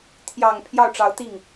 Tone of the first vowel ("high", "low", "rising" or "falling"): low